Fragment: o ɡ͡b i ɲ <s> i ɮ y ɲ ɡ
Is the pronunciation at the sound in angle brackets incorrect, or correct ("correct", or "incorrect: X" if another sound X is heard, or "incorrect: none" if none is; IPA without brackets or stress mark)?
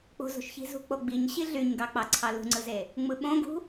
incorrect: ɕ